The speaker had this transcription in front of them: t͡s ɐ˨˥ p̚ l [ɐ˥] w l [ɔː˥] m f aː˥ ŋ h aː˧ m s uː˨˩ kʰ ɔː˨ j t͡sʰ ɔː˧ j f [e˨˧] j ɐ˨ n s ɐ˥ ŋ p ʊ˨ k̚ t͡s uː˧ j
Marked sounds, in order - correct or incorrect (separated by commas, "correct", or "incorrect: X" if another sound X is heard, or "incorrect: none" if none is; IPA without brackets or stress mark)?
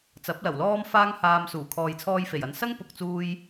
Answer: incorrect: ɐ˨˩, correct, incorrect: e˨˩